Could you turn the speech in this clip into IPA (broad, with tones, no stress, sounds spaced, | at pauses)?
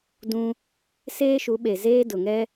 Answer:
d ũ˦ | s eː˦ ʃ u˨˦ ɓ e˨ z eː˦ d ʊ˨ ŋ ɛ˦